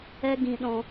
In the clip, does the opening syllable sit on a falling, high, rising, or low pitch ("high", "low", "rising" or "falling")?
high